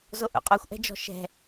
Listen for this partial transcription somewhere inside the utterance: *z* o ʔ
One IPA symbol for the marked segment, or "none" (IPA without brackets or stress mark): z